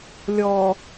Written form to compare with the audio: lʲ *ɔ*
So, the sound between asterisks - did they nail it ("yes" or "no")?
yes